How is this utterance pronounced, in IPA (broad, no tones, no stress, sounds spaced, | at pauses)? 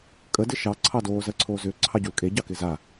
kʼ ə d ɪ ʃ ɑ ǀʰ ɑ d oː z ɜ ǀʰ oː z ʏː ǀʰ ɑ ɟ u l kʼ e ɟ ɑ k ɪ z a